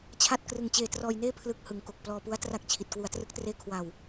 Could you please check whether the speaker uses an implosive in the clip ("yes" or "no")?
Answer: no